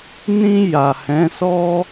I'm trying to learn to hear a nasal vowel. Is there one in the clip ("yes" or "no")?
yes